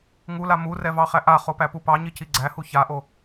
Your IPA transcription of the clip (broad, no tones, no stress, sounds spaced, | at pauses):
ŋ u l a m u r ɛ v ɑ χ æ ʔ a χ o p æ p u p ɑ ɲ i c i ɡ͡ǀ æ h u ç a ʔ o